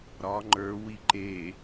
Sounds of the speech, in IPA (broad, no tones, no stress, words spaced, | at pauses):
ɾɒ ŋ͡ǃə˞ wiǃe